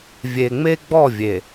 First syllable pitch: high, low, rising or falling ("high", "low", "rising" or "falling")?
low